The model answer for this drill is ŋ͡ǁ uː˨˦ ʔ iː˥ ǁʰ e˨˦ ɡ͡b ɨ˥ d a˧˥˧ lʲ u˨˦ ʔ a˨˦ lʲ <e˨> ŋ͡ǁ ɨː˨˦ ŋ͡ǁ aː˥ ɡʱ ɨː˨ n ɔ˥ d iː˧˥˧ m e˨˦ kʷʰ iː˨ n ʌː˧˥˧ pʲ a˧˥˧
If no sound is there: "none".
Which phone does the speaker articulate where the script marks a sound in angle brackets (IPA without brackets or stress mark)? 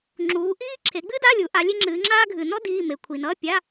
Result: e˥